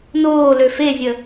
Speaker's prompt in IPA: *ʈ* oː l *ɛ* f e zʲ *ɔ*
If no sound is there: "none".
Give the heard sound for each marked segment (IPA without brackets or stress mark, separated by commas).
n, ø, ə